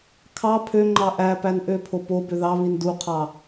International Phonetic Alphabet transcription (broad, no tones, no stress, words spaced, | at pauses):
kʰɑ pʰøŋ͡ǃɑ ʔæpæn ʔøpʰo po bøðɑβin duqʰɑ